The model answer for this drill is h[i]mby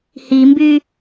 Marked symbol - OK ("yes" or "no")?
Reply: yes